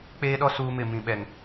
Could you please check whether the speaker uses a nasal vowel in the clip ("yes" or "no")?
yes